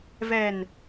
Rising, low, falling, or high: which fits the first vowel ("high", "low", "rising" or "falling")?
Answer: low